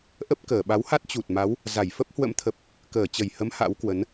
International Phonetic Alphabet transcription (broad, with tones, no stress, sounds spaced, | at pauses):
ʔ ə˦˥ p̚ k əː˧˩ ɓ a˨˦ w h a˦˥ t̚ t͡ɕ u˨˩ t̚ m a˨˦ w | z a˧˩ j f ə˦˥ p̚ h w ə̰˧˥ m t̪ʰ ə˨˩ p̚ | k əː˧˩ t͡ɕ ə˨˩ j h ə˨˦ m h a̰˧˥ w k w ə˨˦ n